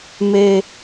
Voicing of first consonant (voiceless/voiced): voiced